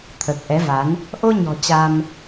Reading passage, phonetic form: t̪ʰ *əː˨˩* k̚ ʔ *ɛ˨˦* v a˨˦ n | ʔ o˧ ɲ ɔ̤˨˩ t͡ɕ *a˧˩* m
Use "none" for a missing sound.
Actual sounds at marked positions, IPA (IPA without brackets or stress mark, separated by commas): əː˨˩, ɛ˨˦, a˧